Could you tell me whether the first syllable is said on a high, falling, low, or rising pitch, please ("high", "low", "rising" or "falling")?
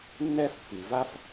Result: high